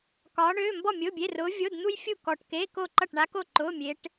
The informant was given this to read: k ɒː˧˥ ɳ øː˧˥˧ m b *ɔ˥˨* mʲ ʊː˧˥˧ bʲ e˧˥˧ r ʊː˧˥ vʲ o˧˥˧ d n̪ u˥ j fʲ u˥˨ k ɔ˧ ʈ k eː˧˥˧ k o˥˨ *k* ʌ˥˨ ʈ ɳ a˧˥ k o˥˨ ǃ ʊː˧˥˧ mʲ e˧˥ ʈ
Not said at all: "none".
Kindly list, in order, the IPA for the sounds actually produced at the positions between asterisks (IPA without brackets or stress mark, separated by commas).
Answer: ɔ˥˨, ǃ